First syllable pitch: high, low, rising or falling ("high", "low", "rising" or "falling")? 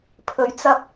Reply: rising